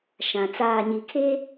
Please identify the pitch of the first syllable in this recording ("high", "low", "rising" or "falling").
low